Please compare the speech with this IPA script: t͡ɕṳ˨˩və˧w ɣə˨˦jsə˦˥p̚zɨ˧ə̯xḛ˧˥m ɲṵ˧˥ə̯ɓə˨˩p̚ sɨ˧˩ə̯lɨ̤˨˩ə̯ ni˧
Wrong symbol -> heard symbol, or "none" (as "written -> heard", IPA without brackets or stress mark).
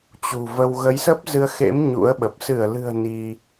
none